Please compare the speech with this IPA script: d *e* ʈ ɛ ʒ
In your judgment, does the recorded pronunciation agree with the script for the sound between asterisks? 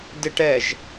yes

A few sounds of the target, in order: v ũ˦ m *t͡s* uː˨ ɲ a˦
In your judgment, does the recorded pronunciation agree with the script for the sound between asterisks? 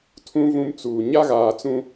yes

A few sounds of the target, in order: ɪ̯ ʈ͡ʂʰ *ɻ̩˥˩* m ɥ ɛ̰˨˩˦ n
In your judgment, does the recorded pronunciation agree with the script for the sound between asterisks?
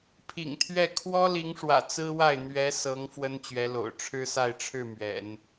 yes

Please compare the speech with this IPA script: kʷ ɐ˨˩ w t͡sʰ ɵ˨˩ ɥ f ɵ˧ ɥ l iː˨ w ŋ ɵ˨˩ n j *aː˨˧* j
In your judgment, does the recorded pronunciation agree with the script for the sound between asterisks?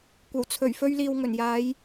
yes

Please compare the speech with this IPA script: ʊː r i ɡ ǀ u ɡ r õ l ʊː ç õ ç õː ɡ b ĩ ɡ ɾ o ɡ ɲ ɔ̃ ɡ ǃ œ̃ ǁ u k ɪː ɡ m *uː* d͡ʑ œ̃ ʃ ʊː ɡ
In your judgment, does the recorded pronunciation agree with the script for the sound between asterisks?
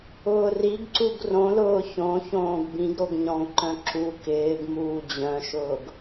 yes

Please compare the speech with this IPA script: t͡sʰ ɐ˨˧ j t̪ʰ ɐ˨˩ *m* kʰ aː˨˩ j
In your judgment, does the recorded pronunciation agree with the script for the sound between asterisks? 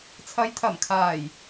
yes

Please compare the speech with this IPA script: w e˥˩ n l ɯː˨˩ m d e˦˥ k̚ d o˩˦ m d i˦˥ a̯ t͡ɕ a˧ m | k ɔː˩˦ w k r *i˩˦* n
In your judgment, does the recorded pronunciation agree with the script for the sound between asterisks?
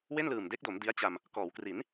yes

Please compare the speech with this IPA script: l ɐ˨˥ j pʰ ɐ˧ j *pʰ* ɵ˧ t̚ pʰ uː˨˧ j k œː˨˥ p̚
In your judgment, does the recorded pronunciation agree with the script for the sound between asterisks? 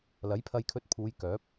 no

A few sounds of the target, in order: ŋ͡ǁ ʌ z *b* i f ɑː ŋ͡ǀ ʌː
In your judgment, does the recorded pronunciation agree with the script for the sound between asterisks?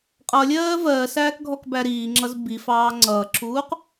yes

